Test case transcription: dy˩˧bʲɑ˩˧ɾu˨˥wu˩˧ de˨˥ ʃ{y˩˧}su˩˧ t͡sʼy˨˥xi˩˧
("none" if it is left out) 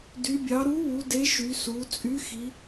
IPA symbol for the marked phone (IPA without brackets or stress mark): y˩˧